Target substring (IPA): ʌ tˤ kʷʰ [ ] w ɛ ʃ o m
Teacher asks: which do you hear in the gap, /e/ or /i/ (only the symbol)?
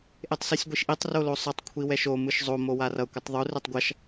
i